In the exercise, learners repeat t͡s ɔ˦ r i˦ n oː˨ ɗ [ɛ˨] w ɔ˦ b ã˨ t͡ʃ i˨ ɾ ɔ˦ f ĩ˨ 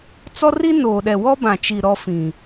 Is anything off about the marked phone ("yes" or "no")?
no